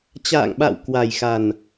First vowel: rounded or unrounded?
unrounded